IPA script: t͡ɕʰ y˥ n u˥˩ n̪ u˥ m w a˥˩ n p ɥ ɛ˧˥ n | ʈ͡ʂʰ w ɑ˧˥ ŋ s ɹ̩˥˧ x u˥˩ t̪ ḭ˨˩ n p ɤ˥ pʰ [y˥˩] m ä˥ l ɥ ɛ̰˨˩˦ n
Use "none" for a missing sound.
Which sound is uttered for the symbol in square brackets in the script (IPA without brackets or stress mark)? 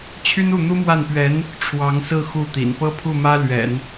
u˥˩